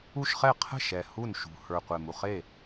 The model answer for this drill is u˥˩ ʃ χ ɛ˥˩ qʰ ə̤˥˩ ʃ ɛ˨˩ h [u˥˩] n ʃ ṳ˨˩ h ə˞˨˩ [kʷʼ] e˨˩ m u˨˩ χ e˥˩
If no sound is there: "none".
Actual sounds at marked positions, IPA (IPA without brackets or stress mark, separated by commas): u˥˩, qʷ